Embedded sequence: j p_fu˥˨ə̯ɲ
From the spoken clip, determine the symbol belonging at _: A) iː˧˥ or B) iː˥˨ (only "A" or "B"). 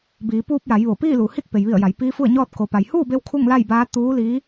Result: A